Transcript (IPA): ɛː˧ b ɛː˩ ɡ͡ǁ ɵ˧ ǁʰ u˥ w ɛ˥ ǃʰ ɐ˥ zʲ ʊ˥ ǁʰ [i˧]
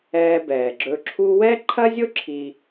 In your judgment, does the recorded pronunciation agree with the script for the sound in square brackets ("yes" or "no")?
yes